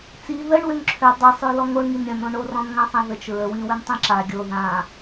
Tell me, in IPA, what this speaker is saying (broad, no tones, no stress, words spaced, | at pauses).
t͡si ðəɳwøŋ ǁʰø dˤisˤølɔ ŋoɳŋin ɾʲə̃nõɳo rɔ̃nŋãsˤãðət͡ʃ ɹəwĩwøn tˤĩǁa ɡʲo ðã